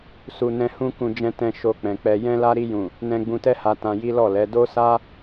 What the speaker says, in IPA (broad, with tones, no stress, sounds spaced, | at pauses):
s u˨ n ɛ̃˧ h ũ˦ k ũ˧ d͡ʒ ɛ̃˧ t ɛ̃˧ ʃ o˧ k͡p ɛ̃˨ k͡p ɛ˧ j ɛ̃˦ l a˦ ɾ i˧ j ũ˨ | n ɛ̃˧ ɡ͡b ũ˧ t ɛ˦ h a˧ t ã˧ j i˦ l ɔ˦˨ l ɛ˨˦ d o˦ s a˦